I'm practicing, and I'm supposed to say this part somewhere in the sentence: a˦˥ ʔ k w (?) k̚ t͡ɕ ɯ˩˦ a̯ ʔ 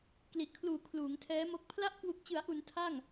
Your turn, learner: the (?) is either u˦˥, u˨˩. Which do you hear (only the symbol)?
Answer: u˨˩